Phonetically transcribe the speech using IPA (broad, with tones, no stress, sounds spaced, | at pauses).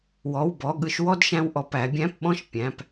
w ɔ˩˧˩ w b ɔ˩˧˩ ɠ ɯ˧ ʃ w ɔ˥˧ d ʃ æ̃˧ w ʔ ɔ˩˧ p æ˩˧ bʲ æ̃˧˥˧ p ɓ ɔ̃˥˧ ʃ pʲ æ̃˩˧˩ p